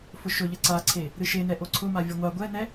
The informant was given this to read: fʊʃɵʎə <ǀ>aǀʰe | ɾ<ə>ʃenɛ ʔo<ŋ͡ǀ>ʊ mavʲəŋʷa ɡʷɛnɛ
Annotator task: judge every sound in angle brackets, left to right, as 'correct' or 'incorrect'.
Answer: correct, incorrect: ɨ, incorrect: ǀʰ

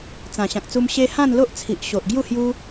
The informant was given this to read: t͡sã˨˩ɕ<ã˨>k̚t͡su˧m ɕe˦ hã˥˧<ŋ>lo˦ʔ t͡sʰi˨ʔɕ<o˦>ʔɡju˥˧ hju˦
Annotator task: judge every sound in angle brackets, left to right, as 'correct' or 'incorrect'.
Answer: correct, incorrect: n, incorrect: o˨

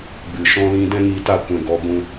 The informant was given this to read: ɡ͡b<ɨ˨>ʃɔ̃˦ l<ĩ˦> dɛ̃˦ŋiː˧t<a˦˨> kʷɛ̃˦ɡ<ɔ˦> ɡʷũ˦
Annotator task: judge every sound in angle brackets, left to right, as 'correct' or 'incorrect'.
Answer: correct, correct, correct, correct

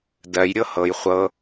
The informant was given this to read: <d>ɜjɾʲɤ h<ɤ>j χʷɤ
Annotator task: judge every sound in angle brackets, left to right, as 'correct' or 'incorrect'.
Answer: correct, correct

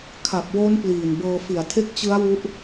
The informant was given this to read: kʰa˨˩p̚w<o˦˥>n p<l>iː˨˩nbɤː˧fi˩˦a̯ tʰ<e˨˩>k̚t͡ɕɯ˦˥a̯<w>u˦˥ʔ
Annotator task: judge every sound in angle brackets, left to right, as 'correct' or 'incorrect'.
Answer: correct, correct, incorrect: e˦˥, correct

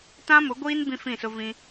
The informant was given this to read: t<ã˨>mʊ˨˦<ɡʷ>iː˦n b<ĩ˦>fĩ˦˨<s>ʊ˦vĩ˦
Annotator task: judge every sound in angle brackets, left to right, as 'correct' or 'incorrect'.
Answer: incorrect: ã˦, correct, correct, correct

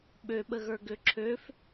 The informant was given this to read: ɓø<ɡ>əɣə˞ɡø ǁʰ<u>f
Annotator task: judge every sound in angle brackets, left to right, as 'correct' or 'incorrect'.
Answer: incorrect: ɓ, incorrect: ø

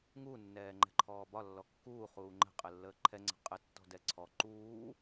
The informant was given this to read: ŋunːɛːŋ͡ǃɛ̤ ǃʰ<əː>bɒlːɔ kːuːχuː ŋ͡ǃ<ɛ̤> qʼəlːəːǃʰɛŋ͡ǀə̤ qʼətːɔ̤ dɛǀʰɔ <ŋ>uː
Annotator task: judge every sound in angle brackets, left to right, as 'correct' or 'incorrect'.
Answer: incorrect: ɔː, incorrect: ə̤, incorrect: ǃ

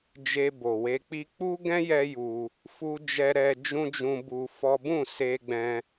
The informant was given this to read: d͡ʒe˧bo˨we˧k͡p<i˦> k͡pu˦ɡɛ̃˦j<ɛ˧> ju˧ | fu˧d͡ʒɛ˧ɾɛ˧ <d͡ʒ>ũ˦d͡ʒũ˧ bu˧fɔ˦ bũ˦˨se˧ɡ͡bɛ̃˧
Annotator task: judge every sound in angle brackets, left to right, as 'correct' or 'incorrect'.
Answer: correct, correct, correct

